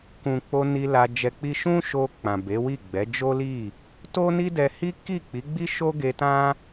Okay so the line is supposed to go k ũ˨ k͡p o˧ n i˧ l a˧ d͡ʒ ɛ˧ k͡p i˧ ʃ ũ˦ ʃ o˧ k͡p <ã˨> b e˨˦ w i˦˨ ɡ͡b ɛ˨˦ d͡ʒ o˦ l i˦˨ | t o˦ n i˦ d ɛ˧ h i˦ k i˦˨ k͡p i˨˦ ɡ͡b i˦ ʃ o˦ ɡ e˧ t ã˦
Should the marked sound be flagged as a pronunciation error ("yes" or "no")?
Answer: no